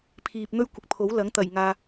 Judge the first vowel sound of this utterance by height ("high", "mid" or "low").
high